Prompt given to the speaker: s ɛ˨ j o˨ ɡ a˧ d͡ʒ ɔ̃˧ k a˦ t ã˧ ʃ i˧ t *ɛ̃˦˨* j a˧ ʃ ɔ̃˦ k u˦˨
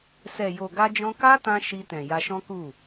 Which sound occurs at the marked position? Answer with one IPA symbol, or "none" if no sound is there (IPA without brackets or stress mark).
ɛ̃˨